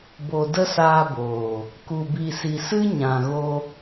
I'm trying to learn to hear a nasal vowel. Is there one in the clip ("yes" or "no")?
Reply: yes